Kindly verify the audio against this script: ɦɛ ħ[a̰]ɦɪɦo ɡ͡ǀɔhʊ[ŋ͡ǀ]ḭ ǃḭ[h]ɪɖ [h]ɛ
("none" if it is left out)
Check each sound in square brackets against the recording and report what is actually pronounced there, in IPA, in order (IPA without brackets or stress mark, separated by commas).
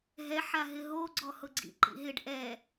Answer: a, ɡ͡ǀ, ɦ, ʔ